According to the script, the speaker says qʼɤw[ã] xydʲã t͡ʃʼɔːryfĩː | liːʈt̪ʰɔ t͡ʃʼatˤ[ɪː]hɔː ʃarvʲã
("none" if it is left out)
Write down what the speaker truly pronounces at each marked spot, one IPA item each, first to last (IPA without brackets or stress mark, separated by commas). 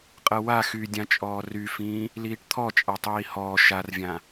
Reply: a, iː